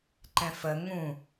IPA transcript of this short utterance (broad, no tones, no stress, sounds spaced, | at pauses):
ǃ ɛ̃ f ə ŋ ũ